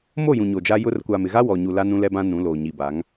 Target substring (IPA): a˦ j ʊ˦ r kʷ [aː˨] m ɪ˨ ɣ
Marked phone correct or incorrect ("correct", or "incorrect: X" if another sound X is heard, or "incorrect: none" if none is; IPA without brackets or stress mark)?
correct